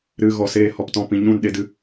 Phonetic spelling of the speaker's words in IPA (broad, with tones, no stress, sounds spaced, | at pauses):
ɾ ɨ˨ ɣ ɔ˨ s eː˧ h ɔ˨ p t ɔ̃˧ p ĩ˨ ɲ ũ˦˨ n ɗ e˧ d ɨ˧